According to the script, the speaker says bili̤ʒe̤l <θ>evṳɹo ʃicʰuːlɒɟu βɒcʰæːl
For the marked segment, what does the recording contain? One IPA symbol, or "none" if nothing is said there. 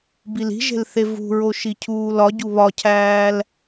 θ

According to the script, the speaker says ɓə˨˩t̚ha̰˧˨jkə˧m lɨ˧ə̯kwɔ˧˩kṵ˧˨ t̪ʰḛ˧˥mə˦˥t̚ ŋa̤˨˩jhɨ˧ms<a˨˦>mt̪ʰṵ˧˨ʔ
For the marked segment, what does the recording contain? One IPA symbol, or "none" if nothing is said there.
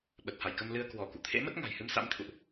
a̰˧˥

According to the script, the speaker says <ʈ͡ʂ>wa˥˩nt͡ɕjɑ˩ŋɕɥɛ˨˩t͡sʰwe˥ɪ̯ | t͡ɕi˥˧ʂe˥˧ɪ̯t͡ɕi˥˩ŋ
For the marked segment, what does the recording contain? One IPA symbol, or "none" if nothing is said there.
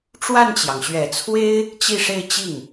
ʈ͡ʂ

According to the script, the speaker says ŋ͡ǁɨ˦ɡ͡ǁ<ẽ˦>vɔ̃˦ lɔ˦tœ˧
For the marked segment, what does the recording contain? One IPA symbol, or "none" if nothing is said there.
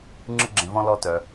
ẽ˧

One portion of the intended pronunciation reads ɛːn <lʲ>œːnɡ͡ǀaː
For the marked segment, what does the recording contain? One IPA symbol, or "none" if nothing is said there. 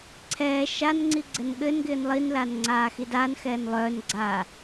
lˠ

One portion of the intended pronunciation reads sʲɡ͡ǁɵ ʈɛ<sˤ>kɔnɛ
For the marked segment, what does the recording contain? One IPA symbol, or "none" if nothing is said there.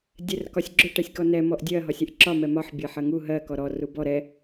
sʲ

